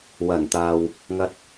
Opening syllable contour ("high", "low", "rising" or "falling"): low